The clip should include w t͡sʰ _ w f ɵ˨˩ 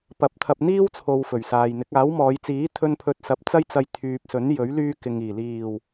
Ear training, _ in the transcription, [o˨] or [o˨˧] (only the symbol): o˨